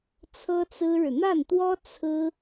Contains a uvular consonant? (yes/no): no